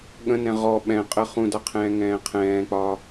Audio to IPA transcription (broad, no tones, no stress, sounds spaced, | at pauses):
ɠ ə̃ n ɛ̃ ʁ ɔ ɓ ɛ̃ qʼ ə χ ũ d a qʰ ɛ̃ː ŋ ɛ̃ː qʰ ɛ̃ː k͡p ɒ